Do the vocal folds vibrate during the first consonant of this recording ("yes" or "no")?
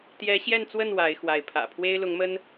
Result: no